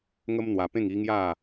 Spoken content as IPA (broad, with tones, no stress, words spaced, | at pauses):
ŋə˦mn̪wa˧pẽ˥˧ŋ i˦ŋja˥˧